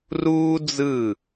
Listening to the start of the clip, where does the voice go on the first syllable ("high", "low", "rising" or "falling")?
high